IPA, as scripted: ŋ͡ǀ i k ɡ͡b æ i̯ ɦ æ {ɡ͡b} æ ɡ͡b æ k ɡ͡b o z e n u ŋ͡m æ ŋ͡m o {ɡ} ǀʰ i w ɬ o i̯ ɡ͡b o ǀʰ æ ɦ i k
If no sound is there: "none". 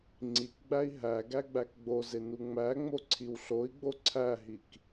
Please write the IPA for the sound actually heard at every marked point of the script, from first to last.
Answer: ɡ, none

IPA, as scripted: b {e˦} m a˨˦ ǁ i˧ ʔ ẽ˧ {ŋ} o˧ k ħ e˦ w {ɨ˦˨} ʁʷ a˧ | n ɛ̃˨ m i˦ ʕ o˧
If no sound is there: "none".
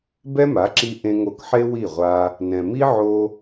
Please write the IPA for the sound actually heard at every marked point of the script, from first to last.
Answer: ɛ˦, ŋ, i˦˨

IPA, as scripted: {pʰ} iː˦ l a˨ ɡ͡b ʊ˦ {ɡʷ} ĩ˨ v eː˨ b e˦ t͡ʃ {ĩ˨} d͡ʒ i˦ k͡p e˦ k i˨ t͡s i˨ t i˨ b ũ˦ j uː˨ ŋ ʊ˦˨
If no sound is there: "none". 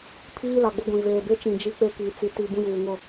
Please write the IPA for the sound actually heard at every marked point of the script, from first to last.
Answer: pʰ, ɡʷ, ĩ˨

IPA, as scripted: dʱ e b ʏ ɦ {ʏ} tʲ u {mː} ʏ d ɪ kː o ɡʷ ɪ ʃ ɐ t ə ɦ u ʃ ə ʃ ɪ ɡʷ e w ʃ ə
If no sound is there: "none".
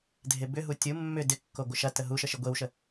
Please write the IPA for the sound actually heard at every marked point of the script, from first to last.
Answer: u, mː

